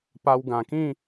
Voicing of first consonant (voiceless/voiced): voiceless